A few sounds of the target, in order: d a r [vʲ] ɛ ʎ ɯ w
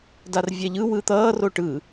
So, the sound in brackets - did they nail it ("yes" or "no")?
yes